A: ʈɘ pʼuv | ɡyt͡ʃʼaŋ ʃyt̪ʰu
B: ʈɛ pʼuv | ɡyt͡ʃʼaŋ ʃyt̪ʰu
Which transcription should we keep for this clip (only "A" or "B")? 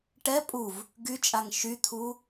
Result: B